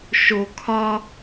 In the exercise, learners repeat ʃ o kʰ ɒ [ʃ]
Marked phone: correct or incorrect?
incorrect